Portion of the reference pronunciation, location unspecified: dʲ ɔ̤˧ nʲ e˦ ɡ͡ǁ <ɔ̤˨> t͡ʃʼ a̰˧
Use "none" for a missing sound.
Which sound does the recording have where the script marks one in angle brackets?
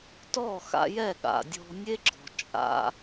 ɔ̤˨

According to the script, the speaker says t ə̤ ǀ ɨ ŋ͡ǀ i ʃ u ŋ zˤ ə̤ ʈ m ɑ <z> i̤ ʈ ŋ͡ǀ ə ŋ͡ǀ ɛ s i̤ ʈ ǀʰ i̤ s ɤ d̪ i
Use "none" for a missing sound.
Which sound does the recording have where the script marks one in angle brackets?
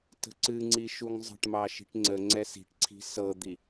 ʃ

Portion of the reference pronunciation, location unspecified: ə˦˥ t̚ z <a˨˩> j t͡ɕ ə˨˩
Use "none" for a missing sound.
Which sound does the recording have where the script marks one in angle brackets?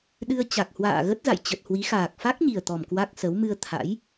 a̰˧˨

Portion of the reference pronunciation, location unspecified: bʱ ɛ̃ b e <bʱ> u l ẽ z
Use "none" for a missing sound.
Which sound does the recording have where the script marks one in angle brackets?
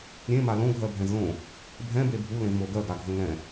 bʱ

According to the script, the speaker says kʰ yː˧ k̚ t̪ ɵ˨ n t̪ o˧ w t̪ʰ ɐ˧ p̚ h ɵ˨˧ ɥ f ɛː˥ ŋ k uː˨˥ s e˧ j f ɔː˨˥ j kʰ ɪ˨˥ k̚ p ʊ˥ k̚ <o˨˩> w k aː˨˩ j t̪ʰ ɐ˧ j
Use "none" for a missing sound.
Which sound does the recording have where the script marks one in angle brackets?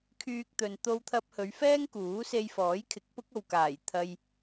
o˨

